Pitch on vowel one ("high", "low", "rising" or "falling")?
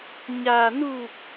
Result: low